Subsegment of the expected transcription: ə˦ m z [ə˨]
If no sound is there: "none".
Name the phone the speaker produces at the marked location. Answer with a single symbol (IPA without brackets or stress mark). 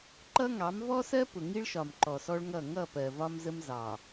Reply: ɑ˨